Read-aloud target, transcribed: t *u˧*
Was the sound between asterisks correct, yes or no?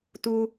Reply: yes